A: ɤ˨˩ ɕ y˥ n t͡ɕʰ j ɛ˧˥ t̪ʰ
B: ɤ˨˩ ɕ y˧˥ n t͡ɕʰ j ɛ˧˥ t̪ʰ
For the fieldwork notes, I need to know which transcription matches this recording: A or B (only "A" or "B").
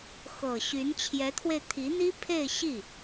B